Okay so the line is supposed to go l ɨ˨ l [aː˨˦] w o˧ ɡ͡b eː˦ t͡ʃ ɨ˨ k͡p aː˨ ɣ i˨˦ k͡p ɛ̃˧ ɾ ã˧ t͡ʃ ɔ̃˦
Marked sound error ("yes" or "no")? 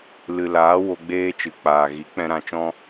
no